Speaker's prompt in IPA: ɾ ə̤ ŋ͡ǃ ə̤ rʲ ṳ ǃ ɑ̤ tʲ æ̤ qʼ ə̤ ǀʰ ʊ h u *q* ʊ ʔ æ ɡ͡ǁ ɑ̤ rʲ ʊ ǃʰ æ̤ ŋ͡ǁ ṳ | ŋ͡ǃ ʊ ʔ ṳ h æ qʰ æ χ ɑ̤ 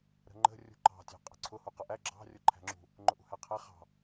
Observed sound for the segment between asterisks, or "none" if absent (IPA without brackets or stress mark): q